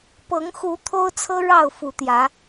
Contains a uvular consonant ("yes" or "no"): no